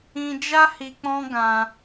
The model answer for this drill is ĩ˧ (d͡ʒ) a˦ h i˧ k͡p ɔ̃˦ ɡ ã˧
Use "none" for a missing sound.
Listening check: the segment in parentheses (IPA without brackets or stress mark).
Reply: d͡ʒ